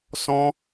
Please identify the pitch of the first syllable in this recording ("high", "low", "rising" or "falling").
high